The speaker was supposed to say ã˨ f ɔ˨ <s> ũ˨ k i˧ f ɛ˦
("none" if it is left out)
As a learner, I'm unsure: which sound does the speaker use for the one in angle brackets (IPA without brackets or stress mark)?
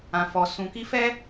s